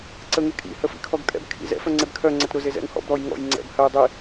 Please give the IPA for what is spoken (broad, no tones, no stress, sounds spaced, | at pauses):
ǀ ə ŋ e kʼ ḭ h ə f ḭ kʰ ɔ ɡ kʼ ɛ̰ b kʰ ḭ z ɛ̰ f œ ŋ͡ǀ e b kʰ œ ŋ͡ǀ ə t ɾ ʊ z e z ɛ̰ ŋ h ɔ̰ b ɾ ɔ j ŋ ɔ̰ j ŋ͡ǀ ɛ̰ b h ə j dˤ i